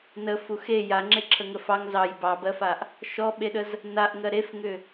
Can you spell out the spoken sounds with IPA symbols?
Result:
n ə f u x e j a ŋ͡ǁ e ǁʰ ə ŋ ə f ɑ ŋ z ɑ j b ɑ b ɜ f a ʔ | ʃ ɔ ɓ e ɗ ə z | n a ʔ ŋ ɜ ɾ e f ŋ ʏ

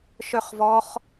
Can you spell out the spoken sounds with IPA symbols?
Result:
ʃ œ χ v ɔ χ

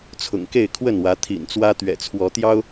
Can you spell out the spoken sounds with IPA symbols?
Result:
t͡sʰ ʊ̰˨˩ ŋ k e˥˨ ɪ̯ kʰ w ə˥˨ n w ä˨˦ t̪ʰ ḭ˨˩ n t͡s w ä˦ t̪ ɥ ɛ̰˨˩ t͡sʰ w ɔ˨˦ t̪ j ɑ˦ ʊ̯

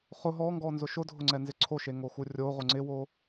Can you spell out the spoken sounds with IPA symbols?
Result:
χ ʊ ɦ ɔ ŋ ɡ ɔ n z ʊ ʃ ʊ dʱ ʊ ŋ͡ǀ ɛ n z ɪ ǀʰ o ʃ e ŋ o x u rʲ o ʁ ʊ ŋ͡ǀ ɪ w o

